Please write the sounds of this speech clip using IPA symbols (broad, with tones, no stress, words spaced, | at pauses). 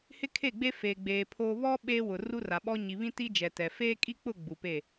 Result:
hɪ˦kʰe˦˨ ɡ͡be˦feː˨ɡ͡beː˨ pʰoː˦ βɔ˦ ɓeː˦wʊ˨ ru˦ra˨ɓɔ˦ ɲi˨βĩ˦ti˦ d͡ʒɛ˨tɛ˨ feː˦kʼi˦k͡pʊ˦˨ ɡ͡bu˨pe˦˨